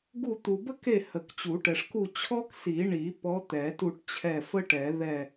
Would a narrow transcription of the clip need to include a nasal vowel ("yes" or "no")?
no